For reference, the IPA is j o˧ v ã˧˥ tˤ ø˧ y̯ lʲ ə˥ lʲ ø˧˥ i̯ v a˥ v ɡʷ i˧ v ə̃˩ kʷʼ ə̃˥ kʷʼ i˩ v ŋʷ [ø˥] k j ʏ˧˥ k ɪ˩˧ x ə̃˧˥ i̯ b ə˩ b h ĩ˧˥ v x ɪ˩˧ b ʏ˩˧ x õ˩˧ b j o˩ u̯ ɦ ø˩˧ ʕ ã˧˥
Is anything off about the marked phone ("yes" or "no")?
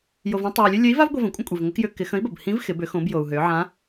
yes